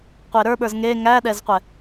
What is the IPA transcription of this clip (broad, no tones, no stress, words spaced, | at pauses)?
qʷeɾə˞ɓə˞z ŋe ŋæɗɛzqʷɛ